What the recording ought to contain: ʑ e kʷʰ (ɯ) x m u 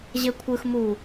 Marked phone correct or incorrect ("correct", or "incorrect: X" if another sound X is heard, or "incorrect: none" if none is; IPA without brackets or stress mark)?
correct